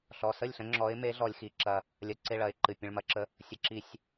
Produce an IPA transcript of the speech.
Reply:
ɬ ɔ˩˧˩ s ə˥˩ lʲ ɬ ə̃˨˦ ŋ͡ǁ ɔ˨˦ ɪ̯ m e˨˦ ɮ ɔ˨˩˦ lʲ x i˩˧˩ ǁ ɐ˨˩˦ | lʲ ɐ˧˩ ǀ e˥˩ ɭ ɐ˩˧˩ ɪ̯ ǃ ɨ˩˧˩ pʲ ə̃˩˧˩ ɭ m ɐ˨˩˦ ǁ ə˨˦ | sʲ ə˨˦ ǁ i˨˩˦ sʲ

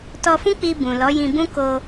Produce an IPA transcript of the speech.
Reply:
t ɔ˧ f ũ˦ k͡p i˧ b ũ˨ l ɔ˨˦ j ĩ˧ b ũ˦ k o˧

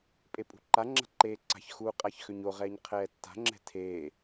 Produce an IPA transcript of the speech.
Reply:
pʼ e pʼ ṳ ǃ a ŋ͡ǁ a̤ ǃ eː ǀ a̤ ç x uː qʼ a ç x ø ɲ o ʁ ɛː ɲ qʰ ɛː tː a̤ ŋ͡ǁ ɛ̤ tʰ eː

